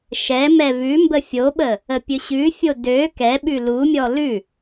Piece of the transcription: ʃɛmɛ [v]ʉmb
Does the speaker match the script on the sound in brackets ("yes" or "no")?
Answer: yes